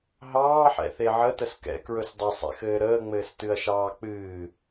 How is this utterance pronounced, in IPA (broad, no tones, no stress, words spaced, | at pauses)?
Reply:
ɦɑːħɛ̰θe ʕətəs kɛ̰kɹɵs dˤɘsˤɛ̰xɘː ɾəːŋ͡mɘːstɨɐ̯ʃɑː k͡pɨː